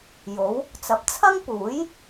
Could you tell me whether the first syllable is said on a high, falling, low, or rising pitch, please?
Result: rising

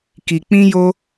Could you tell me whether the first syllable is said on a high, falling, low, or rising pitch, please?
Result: low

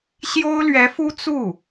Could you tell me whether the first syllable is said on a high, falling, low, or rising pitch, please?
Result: high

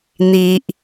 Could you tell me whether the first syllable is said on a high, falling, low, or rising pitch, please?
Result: high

